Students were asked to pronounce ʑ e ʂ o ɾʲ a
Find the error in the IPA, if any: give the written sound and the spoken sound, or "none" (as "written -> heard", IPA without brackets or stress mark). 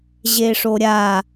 none